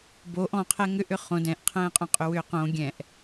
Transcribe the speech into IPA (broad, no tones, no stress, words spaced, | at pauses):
boʔ ɔ̃qʰɛ ŋʏʔʏ χõ dɛ̃ʔqʰɛ̃ːqʼõqʼʏ wʏːqõ ɡʲɛ̃ʔ